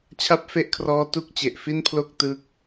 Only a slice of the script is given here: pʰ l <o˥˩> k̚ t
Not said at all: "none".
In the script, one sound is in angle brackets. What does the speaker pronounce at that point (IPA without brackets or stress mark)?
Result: o˥˩